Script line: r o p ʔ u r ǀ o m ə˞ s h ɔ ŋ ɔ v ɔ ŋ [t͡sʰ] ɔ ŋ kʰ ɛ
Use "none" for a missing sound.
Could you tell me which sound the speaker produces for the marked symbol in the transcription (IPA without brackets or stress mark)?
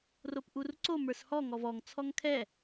t͡sʰ